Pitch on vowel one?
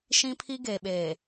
high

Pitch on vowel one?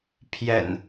low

